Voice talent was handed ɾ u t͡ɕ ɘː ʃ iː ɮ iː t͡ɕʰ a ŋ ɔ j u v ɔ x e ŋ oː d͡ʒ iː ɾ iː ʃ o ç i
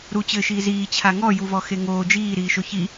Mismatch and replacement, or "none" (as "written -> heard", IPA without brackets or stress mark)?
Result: ɮ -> z